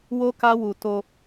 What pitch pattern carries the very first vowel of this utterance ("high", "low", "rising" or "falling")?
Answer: high